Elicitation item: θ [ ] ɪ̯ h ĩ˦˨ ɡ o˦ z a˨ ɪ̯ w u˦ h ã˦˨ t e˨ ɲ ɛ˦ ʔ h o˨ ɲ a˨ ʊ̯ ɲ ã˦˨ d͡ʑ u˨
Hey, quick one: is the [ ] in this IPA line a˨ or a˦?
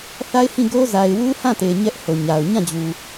a˦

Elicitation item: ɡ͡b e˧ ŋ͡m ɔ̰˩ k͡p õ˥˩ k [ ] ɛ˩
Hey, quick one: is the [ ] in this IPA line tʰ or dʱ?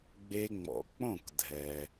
dʱ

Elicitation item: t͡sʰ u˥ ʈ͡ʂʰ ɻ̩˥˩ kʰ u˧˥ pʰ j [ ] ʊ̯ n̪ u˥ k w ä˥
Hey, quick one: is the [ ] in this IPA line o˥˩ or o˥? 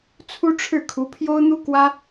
o˥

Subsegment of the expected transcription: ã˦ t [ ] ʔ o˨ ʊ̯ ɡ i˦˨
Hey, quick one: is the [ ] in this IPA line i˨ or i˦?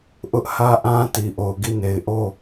i˨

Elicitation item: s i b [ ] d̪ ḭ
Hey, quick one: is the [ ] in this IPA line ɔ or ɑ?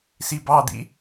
ɑ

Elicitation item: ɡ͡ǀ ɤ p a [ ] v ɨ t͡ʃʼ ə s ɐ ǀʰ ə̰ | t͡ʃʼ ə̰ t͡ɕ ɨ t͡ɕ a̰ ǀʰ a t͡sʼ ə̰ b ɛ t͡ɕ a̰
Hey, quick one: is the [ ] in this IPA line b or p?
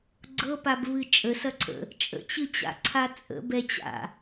b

